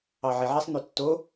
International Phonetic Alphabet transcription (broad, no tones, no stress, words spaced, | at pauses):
ɑʕeʕɛsˤ n̪øtːo